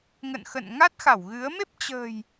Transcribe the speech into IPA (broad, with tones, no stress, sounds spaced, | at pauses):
ŋ ə̰˧˨ n x ə̰˧˨ n ŋ a˦˥ t̚ x a˧˩ w ɣ ɨ˨˦ ə̯ m e˦˥ p̚ t͡ɕ ə̤˨˩ j